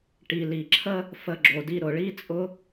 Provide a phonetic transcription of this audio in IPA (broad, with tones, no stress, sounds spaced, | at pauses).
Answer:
ʈ i˨ l i˨ ǁʰ ə˦ | f ə˧ ɡ͡ǁ o˨ d i˧ ɾ ʊ˨ ɭ i˦ t͡sʼ ʊ˦